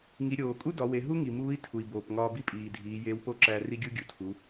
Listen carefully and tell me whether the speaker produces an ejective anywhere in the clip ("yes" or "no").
yes